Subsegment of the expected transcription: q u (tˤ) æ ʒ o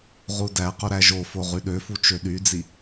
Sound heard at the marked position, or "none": ɾ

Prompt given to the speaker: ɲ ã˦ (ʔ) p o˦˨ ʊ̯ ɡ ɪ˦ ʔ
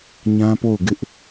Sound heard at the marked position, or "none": none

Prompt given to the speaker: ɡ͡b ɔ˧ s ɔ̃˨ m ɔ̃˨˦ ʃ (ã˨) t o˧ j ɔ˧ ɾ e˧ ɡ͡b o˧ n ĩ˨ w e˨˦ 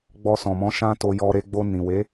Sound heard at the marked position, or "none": ã˦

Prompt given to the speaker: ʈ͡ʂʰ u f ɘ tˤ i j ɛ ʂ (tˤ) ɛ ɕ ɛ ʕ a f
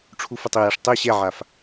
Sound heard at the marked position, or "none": tˤ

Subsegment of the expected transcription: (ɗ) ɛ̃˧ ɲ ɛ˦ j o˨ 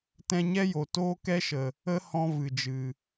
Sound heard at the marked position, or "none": t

